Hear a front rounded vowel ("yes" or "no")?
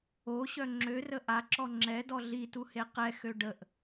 yes